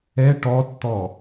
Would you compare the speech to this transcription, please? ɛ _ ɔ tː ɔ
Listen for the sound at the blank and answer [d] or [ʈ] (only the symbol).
ʈ